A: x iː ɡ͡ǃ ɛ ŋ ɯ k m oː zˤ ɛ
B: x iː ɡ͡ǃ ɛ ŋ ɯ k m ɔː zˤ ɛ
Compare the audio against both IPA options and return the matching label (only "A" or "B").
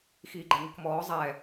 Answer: B